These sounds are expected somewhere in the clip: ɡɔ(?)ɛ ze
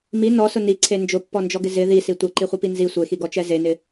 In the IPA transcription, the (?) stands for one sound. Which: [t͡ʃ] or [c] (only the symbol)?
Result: t͡ʃ